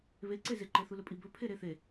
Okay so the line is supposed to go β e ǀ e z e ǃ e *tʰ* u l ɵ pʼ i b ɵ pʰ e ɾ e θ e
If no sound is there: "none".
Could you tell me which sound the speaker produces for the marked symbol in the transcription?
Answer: θ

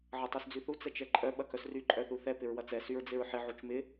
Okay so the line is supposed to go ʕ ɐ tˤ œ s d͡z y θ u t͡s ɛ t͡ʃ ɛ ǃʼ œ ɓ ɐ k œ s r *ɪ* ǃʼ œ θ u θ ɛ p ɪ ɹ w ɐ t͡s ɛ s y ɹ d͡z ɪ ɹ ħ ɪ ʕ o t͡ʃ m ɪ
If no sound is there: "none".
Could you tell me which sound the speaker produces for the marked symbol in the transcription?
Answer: y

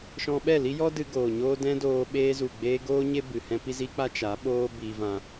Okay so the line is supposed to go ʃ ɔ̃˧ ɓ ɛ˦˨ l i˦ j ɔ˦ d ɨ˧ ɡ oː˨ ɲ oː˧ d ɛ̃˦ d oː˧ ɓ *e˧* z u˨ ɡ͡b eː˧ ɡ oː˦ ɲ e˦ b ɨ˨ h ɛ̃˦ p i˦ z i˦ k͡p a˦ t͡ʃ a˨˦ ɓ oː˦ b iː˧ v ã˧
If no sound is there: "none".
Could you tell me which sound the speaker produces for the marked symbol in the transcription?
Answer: eː˧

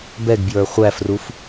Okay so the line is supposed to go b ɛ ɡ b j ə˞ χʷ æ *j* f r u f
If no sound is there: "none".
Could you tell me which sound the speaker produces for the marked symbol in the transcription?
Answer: none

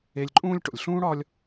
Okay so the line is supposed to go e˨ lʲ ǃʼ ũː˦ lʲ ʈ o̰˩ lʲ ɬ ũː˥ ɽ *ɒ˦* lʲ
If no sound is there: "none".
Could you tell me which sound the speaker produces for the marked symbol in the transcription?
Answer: ɒ˦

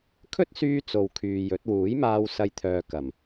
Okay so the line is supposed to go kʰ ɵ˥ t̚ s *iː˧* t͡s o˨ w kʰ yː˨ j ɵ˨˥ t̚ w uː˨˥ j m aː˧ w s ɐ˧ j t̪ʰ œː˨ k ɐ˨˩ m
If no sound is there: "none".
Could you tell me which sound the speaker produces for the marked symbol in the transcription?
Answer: yː˧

